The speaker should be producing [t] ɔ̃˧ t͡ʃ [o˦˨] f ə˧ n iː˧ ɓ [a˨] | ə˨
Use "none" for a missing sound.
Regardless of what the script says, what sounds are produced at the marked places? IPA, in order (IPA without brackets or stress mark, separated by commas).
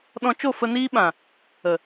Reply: ɗ, o˦˨, ã˨